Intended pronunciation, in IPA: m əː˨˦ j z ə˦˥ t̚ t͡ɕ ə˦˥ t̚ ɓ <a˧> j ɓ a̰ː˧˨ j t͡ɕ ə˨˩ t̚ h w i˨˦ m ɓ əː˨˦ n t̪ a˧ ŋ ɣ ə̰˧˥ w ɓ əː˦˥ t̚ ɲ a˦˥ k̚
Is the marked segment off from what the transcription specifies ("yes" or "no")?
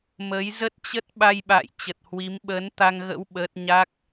no